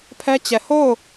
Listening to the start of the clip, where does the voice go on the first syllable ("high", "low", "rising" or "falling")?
high